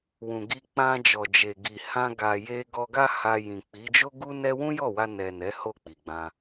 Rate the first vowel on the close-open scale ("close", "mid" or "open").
close